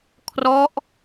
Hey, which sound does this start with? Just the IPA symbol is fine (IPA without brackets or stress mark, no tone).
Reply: kʰ